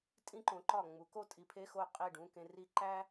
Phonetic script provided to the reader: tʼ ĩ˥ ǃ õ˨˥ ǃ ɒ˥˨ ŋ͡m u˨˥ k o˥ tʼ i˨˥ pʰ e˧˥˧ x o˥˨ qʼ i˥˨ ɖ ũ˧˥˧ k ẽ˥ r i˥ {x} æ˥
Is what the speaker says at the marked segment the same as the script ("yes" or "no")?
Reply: no